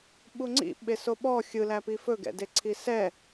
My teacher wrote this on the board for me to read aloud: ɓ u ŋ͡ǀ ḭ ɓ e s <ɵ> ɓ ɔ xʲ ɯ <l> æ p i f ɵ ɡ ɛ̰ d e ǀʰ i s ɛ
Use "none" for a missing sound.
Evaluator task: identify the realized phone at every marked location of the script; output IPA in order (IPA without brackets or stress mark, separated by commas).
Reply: o, l